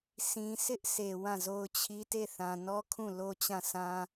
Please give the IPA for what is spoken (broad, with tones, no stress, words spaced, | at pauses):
sʰĩ˨sʰɪ˦ʔ sʰe˨wã˦˨zo˦ʊ̯t͡ɕʰi˦ te˦˨θã˨nɔ˦kʰũ˦˨ lo˦t͡ɕã˦˨sã˦